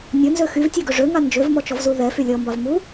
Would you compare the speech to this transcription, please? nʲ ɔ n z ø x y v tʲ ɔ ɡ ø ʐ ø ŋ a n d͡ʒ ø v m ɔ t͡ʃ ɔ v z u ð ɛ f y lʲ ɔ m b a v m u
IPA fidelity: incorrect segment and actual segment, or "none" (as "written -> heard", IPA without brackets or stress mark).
none